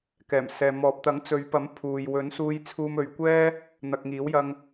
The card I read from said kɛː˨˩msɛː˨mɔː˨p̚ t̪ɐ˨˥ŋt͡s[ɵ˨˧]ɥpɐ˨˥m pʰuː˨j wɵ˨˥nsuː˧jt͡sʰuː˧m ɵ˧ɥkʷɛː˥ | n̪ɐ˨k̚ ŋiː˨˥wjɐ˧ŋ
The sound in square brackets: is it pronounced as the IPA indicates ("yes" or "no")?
yes